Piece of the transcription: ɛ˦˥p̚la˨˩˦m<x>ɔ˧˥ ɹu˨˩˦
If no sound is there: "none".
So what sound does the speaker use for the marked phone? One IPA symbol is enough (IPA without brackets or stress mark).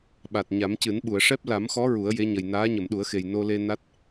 x